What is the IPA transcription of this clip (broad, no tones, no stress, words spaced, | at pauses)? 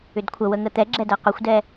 ʏdkʷʰəwə ŋət̪ɛɡ͡ǁɛ dɜqʏxʷdɛ